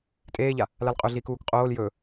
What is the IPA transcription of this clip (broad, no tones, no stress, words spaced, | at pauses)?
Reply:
tʼeːʎa | lalqʼɵɮiːk uːkqʼoːl jɵ